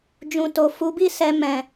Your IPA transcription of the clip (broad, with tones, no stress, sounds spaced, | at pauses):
d͡ʒ ũ˨ t o˨ f u˨˦ b i˦ s ɛ˧ m ɛ̃˨